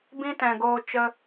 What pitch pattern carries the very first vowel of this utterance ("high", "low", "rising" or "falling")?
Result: high